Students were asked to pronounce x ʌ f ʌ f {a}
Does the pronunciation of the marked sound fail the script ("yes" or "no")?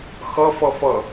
yes